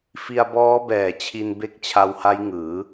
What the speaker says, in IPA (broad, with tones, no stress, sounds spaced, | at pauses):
f i˧ a̯ b ɔː˦˥ b ɛː˨˩ t͡ɕʰ i˧ n b e˦˥ k̚ t͡ɕʰ a˧ w h a˦˥ j ŋ ɯː˩˦